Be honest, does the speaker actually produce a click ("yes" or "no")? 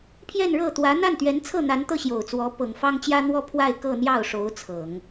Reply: no